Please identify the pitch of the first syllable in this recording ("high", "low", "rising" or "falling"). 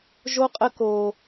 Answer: high